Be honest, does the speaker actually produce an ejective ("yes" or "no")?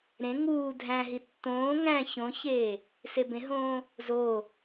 no